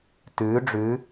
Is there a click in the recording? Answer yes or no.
no